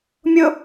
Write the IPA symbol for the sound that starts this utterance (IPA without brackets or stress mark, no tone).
mʲ